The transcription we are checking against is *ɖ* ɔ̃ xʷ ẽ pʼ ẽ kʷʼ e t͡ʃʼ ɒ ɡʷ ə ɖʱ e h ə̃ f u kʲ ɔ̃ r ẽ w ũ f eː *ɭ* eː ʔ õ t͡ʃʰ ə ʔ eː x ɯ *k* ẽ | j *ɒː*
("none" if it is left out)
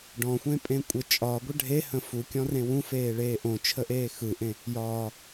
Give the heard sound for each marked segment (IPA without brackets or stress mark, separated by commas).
ɖ, ɭ, ʔ, ɒː